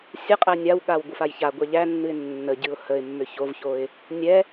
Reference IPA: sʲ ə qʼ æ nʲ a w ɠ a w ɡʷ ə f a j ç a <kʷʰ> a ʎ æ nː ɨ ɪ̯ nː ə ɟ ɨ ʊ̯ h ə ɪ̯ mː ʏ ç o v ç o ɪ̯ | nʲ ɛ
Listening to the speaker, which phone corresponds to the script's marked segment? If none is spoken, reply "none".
ɡʷ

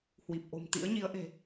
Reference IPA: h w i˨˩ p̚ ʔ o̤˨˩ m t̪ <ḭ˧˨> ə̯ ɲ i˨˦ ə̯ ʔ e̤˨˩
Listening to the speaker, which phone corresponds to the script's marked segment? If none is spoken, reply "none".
ḭ˧˥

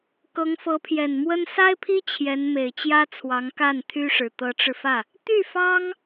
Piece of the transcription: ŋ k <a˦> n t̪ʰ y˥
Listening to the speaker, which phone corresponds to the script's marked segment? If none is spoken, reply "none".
a˥˩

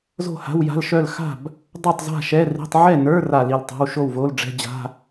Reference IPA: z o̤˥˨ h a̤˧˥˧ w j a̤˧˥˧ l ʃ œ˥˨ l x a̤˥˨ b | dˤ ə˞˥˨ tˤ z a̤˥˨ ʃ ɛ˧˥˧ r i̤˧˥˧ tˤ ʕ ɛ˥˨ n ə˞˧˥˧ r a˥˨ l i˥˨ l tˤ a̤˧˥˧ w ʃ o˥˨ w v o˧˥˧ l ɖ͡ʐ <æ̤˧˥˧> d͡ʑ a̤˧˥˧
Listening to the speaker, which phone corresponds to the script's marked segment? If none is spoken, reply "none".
ɛ̤˧˥˧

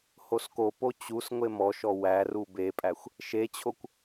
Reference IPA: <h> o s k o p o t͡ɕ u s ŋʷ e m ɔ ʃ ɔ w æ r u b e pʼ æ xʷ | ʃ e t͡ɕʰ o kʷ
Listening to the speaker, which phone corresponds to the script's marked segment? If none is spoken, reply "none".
h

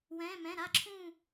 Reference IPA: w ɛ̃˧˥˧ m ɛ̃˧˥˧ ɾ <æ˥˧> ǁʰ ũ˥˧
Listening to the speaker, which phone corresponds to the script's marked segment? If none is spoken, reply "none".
a˥˧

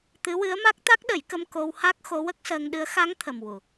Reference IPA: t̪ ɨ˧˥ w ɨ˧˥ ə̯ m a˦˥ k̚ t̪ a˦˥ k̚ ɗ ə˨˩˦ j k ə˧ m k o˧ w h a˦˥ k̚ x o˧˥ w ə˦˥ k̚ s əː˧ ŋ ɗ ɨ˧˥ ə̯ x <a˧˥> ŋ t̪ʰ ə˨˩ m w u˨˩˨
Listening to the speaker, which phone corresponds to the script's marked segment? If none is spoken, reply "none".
a˧˥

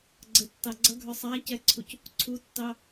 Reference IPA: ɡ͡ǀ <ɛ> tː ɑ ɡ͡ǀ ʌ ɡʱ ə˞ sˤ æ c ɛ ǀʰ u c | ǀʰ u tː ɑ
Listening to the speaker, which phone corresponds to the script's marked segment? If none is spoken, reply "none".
ə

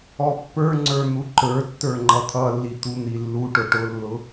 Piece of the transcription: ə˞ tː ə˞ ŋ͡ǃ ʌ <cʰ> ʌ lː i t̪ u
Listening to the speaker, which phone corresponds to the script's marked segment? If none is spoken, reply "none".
t̪ʰ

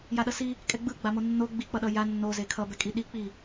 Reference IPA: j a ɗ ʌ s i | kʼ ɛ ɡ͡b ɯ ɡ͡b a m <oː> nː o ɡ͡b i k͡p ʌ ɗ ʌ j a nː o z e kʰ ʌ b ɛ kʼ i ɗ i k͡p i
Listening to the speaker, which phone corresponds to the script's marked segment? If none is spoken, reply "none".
o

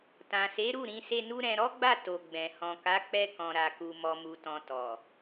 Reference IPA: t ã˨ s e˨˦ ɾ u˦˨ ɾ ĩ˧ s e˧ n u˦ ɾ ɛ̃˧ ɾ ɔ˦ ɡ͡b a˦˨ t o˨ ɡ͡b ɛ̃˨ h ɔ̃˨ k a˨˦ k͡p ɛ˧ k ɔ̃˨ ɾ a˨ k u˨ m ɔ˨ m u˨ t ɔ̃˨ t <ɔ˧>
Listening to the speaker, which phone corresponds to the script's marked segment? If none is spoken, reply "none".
ɔ˨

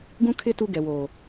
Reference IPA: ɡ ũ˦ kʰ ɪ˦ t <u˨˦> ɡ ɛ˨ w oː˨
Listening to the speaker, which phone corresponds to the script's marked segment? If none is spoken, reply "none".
u˦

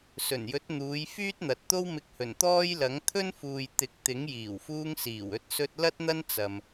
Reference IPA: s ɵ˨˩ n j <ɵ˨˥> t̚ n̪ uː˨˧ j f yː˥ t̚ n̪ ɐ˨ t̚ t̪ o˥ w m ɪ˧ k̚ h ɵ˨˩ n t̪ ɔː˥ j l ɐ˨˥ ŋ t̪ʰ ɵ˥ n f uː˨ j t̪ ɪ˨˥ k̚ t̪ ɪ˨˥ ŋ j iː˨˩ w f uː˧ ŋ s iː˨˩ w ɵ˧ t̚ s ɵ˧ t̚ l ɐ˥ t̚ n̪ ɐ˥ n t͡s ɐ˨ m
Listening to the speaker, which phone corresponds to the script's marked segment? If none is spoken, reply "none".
ɵ˨˥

